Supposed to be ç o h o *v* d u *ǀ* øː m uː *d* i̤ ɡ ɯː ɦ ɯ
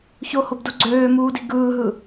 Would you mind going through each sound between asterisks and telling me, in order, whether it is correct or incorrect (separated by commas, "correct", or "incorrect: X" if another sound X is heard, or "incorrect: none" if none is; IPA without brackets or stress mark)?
incorrect: b, incorrect: ɡ͡ǀ, correct